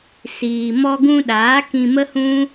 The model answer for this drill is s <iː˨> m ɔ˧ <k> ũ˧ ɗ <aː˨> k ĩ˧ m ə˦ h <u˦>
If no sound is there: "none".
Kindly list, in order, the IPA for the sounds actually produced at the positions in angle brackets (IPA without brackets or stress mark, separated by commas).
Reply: iː˨, ɡ, aː˨˦, ũ˦